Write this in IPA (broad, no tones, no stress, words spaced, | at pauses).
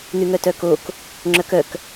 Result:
n̪yŋœtœkok | ŋ͡ǁœkœk